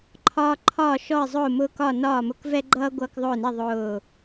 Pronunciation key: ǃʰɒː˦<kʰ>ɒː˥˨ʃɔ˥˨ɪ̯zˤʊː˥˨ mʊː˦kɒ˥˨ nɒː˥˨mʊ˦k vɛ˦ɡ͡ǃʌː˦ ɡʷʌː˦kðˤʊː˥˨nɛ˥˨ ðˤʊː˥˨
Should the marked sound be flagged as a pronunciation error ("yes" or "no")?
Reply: yes